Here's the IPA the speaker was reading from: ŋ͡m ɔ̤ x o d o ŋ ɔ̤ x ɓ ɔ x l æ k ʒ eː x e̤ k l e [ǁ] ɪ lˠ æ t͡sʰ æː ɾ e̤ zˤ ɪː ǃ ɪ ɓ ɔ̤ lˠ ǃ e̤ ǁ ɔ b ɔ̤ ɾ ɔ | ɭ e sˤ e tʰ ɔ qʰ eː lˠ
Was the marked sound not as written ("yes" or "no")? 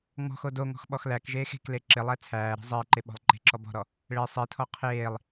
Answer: no